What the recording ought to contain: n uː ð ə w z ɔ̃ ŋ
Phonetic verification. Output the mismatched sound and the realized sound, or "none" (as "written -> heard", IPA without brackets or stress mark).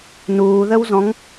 none